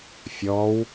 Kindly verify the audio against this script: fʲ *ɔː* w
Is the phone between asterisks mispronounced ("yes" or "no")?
no